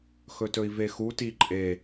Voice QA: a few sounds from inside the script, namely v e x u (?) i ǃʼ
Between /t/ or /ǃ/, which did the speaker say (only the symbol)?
t